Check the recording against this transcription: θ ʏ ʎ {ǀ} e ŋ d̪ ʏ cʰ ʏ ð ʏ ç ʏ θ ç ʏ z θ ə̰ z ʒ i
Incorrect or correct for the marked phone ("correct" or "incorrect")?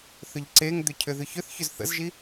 correct